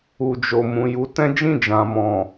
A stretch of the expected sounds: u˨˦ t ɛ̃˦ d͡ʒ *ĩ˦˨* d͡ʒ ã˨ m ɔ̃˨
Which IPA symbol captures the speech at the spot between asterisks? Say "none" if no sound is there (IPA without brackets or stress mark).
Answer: ĩ˦˨